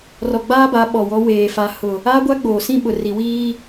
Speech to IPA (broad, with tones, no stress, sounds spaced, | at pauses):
r ɔ˨ ɡ͡b aː˦ b a˨˦ ɓ ɔ˨ w ɔ˦ w eː˨ f a˨ h ʊ˨ | aː˦ ɡʷ a˦ ɡ͡b oː˨ s ĩ˦ ɓ ʊ˨ r i˨ w iː˦